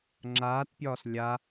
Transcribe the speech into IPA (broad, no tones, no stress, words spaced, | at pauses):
ŋ͡ǁaːtpʲɒːs lʲa